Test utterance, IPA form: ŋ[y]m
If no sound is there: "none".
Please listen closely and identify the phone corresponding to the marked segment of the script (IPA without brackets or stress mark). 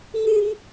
y